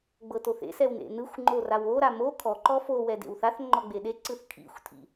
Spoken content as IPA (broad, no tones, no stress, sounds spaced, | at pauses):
ɡ͡b ɤ t o θ ḛ s ɛ w n ḛ n ɯ xʷ ŋ͡ǃ o r a w o ɾ a m o kʰ ɔ ǃ ɔ f o w ɛ d ḛ w θ a θ ŋ͡ǃ ɔ ɡ͡b e ɗ e ǀ ɯ θ kʰ ḭ xʷ tʰ ḭ